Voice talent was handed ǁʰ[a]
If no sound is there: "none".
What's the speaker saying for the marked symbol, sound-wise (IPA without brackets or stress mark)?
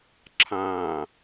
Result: ã